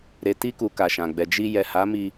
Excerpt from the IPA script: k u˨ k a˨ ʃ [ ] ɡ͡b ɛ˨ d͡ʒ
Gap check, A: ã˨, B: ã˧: A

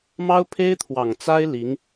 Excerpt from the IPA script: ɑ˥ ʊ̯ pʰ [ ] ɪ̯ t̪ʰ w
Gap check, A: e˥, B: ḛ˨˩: A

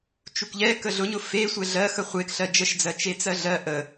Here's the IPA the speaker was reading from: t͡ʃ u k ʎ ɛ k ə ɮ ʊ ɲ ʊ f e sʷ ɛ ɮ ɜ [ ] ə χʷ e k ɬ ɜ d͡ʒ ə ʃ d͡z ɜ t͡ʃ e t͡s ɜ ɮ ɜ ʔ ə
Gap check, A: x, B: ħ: A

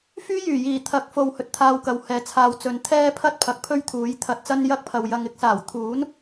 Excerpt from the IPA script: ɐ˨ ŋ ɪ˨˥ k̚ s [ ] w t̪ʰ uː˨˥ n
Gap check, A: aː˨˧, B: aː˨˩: B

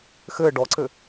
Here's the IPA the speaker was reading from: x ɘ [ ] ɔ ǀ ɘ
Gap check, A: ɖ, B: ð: A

